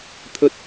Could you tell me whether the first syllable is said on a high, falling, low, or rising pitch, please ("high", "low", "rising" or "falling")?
high